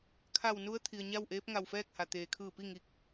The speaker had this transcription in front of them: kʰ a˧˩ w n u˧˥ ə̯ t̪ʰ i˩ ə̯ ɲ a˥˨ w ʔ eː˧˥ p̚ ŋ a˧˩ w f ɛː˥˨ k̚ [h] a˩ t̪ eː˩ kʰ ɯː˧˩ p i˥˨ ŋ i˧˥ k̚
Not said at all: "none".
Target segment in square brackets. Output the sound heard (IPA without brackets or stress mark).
h